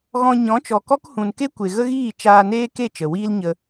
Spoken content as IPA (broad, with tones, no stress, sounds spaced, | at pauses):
ɣ ɔ̃˧ ɲ ɔ̃˨˦ t͡ʃ ɔ˨ k ɔ˦ k h ũ˨ n k e˦ kʷ e˨ ɣ ə˦ ɣ iː˦˨ t͡ʃ aː˧ n eː˦ k e˦˨ t͡ʃ ə˨ w iː˦ l ɲ ə˧